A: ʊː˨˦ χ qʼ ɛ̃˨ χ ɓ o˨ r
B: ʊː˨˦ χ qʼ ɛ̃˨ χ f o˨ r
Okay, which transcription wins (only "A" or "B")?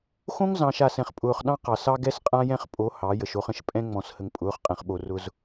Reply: A